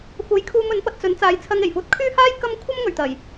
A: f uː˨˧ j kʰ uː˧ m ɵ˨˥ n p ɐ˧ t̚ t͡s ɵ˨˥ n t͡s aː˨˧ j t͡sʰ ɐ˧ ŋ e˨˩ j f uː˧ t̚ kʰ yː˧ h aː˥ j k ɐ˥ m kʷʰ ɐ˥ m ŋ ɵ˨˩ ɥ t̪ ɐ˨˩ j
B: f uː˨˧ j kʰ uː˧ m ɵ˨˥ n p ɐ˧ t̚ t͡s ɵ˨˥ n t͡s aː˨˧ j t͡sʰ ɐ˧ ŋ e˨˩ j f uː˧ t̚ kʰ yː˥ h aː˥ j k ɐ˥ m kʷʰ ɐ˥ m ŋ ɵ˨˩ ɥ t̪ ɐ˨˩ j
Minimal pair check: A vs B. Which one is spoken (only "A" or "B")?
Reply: B